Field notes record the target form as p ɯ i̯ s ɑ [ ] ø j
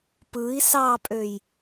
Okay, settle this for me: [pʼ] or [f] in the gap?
pʼ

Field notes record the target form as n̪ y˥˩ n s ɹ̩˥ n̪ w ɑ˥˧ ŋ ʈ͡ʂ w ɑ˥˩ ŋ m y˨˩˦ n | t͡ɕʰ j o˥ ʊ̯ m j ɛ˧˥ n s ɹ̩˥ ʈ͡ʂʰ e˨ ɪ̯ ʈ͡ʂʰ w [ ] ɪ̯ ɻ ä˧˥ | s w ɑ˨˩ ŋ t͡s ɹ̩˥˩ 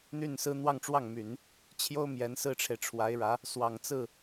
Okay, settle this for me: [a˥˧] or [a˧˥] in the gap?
a˧˥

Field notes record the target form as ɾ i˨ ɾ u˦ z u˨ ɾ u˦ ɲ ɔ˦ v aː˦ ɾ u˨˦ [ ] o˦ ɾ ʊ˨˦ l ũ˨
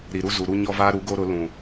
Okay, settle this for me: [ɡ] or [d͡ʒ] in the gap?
ɡ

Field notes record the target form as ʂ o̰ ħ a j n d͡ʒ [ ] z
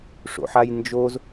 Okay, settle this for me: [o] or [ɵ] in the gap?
o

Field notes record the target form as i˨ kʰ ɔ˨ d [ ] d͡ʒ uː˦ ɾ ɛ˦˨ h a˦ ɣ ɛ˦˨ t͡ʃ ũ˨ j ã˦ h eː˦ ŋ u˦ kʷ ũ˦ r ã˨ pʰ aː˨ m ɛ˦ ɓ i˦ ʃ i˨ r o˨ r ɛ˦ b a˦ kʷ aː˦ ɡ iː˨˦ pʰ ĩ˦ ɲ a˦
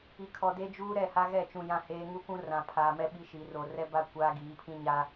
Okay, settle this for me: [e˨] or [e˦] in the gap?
e˦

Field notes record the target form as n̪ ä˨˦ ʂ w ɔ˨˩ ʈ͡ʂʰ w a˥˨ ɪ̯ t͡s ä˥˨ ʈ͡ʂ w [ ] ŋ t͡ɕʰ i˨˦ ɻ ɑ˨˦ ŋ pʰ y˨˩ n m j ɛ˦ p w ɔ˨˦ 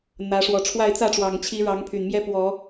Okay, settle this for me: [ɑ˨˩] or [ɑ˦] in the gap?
ɑ˨˩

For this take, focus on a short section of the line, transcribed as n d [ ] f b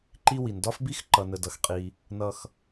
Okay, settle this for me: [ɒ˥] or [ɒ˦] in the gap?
ɒ˥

